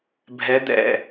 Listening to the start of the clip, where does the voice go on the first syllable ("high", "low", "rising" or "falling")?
rising